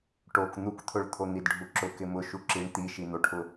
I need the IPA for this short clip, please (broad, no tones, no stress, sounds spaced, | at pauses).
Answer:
ʈ o k n̪ u k t̪ʰ ʊ ɭ t̪ʰ o n̪ i d ɖʱ u ǁ ʊ k ɪ m ʊ ʃ u ǁ i ɳ t̪ i ʃ i n̪ o ʈʰ ʊ